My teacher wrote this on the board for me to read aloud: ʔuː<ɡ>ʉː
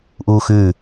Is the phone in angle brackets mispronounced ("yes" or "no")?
yes